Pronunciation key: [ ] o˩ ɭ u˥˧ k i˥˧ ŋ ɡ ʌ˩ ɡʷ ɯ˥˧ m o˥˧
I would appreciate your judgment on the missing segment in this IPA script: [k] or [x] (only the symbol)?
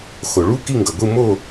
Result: x